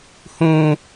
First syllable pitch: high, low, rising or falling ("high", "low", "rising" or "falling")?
high